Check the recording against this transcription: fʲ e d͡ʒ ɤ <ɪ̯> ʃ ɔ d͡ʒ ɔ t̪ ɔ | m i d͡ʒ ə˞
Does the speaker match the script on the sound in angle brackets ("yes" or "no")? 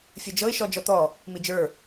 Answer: yes